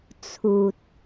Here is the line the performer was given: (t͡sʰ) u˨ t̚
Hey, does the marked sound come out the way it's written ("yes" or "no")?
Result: yes